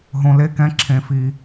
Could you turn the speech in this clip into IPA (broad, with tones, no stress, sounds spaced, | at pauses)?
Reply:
ɦ õ˧ l e˦ k ɛ̃˦ ǁʰ ẽ˧ f i˧